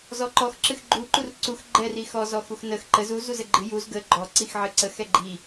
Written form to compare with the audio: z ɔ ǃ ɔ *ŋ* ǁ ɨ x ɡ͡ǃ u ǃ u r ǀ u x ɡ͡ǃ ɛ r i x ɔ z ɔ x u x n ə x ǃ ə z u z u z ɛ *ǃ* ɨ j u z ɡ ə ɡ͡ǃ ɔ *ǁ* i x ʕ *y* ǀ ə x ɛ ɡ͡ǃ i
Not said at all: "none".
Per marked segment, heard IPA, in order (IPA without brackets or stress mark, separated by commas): x, ɡ͡ǃ, ǀ, ɨ